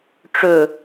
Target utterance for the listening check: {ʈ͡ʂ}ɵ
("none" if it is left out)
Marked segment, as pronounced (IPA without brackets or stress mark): ʈ͡ʂ